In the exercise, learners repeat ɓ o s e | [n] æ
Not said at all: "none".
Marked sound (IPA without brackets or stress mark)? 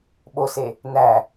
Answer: n